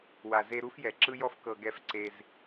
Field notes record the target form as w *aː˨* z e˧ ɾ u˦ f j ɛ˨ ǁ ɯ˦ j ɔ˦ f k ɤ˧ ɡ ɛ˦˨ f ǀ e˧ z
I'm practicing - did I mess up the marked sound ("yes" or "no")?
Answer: yes